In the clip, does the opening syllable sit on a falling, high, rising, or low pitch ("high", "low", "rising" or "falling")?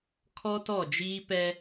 high